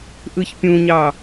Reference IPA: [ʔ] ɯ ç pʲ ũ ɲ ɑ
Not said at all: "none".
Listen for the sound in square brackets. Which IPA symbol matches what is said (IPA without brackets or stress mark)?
ʔ